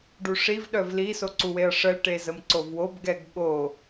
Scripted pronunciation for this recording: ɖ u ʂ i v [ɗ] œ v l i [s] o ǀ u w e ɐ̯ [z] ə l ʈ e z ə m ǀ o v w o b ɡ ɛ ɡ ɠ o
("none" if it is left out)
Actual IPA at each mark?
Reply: ɗ, s, ʂ

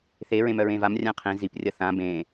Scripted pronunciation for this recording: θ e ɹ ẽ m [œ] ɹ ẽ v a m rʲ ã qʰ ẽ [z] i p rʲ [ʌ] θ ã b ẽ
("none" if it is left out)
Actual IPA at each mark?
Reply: œ, z, ʌ

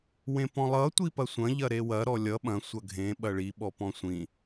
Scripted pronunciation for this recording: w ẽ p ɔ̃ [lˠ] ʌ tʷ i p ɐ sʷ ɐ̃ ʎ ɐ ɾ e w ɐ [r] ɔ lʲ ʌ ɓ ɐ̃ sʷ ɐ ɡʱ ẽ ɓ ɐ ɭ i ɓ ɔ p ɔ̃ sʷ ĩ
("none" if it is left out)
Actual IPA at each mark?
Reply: lˠ, ɾ

